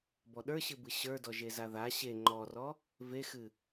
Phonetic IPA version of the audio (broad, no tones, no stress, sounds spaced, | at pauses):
b ɔ ɗ ə˞ ɕ ɨ b ɨ ɕ ə˞ d ɔ ʒ e z a ð a ɕ e ŋ͡ǃ ɔ r ɔ | v e x ɨ